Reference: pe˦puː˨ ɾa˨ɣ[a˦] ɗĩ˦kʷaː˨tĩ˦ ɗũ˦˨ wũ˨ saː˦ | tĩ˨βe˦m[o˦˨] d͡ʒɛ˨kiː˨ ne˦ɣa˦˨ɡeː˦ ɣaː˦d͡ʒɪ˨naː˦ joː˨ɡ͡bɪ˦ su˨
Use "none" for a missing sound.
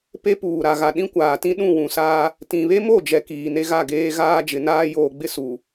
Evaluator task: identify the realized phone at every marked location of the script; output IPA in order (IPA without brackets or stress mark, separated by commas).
a˨, o˦˨